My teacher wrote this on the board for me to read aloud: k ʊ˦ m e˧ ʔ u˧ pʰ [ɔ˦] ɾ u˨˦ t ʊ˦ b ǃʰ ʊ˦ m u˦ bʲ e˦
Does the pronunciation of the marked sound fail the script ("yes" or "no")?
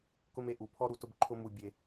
no